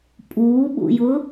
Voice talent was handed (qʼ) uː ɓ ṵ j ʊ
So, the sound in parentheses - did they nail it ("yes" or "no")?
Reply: no